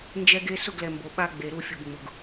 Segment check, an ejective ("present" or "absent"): absent